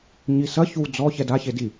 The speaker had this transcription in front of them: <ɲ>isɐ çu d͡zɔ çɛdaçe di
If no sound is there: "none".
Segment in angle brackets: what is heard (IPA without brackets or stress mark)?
ɲ